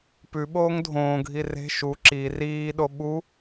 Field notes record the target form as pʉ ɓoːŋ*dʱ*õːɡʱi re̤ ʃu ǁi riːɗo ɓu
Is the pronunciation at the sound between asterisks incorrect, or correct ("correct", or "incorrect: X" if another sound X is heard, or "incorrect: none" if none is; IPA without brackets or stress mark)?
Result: correct